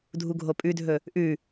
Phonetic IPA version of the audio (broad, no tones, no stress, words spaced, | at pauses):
dʱuɡʱopʼʉdʱɵ | ʔʉ